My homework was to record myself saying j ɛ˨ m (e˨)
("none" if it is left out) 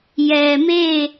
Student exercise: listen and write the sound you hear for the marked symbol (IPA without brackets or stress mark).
e˦˨